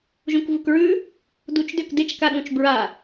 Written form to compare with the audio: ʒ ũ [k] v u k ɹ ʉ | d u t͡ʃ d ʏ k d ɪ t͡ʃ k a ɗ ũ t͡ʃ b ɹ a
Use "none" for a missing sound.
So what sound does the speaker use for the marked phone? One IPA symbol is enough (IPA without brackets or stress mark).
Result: k